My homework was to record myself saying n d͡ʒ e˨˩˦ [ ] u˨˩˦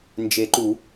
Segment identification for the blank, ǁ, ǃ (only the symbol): ǃ